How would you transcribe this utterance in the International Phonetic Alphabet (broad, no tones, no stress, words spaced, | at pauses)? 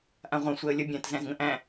ʔãʁʷã sʷɛə̯lʲə bʲæ̃t zæ̃zŋə̃ʔæ̃